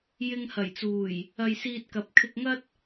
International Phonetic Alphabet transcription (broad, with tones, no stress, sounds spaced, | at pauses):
j ɪ˧ ŋ h ɐ˨˩ j t͡s uː˨˩ j | ɐ˧ j s iː˧ t̚ k ɐ˨˥ p̚ kʰ ɪ˧ k̚ ŋ ɐ˥ t̚